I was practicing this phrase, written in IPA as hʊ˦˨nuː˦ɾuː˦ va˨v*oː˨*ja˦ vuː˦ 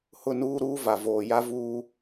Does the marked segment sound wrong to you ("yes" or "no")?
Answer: no